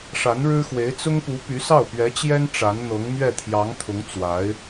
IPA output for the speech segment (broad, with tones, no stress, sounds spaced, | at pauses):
ʂ a˧˥ n ɻ ɻ̩˥ x w e˧˥ ɪ̯ t͡s ʊ˥ ŋ p u˧˥ p y˧˥ s ɑ˥˩ ʊ̯ p ɥ ɛ˧˥ t͡ɕ j ɛ˥ n ʈ͡ʂ a˧˥ n n̪ ɤ˧˥ ŋ m ɥ ɛ˥˩ t̪ʰ j ɑ˧˥ ŋ t̪ʰ ʊ˧˥ ŋ t͡s w a˧˥ ɪ̯